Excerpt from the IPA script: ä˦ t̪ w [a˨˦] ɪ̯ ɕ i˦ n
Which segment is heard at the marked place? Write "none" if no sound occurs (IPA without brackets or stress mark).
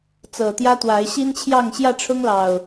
a˨˦